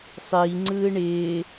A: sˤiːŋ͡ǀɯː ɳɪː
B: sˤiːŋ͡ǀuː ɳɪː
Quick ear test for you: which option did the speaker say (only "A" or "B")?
A